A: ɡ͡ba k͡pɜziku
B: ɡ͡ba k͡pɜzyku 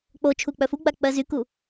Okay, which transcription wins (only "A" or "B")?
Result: B